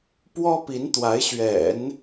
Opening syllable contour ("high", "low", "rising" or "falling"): high